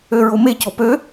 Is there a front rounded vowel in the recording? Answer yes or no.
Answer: yes